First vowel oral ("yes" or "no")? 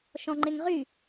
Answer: no